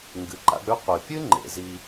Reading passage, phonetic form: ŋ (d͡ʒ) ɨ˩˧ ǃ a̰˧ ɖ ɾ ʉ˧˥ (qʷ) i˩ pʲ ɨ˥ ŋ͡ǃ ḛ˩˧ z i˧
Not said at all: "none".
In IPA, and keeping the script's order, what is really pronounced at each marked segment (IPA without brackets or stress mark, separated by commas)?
ɡ, qʷ